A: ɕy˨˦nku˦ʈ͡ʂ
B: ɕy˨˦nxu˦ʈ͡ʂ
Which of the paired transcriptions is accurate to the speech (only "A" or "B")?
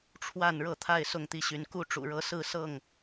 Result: A